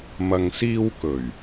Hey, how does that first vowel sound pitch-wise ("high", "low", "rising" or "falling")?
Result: low